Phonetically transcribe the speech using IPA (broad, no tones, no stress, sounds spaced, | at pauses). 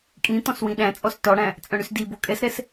kʼ ĩ t̪ ɔ̃ s w ĩ ɗ æ̃ t͡sʼ ɔ s t ɔ ɽ æ̃ | t͡sʼ œ̃ ɽ y s d i b o kʼ ɛ s ɾ ɛ s